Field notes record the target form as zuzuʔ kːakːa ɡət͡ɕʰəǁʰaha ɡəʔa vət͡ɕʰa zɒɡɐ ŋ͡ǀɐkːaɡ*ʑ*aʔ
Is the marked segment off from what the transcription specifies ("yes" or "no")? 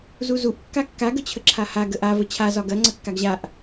no